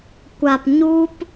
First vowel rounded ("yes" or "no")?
no